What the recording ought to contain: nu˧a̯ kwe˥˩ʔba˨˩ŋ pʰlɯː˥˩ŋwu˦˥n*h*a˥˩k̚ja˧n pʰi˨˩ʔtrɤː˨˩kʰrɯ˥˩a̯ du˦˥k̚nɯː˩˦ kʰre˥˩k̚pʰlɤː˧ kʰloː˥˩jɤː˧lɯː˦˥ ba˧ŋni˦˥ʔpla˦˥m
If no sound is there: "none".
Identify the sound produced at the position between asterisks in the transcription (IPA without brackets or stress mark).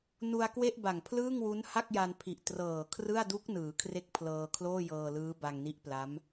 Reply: h